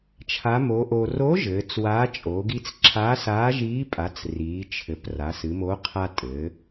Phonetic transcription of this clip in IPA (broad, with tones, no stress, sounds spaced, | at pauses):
t͡ʃʰ a˨˥ m o˨˥ ʔ o˧ r o˨˥ ʒ ɘː˩˧ t͡s w aː˨˥ t͡ʃʼ o˩˧ ɡ i˧ t͡s ǁʰ a˨˥ s aː˨˥ ʒ iː˨˥ pʼ a˩˧ t͡s r iː˩˧ t͡ʃʰ ɘ˩˧ p r aː˩˧ s ɨ˩˧ m o˨˥ qʰ a˧ tʼ ɘː˩˧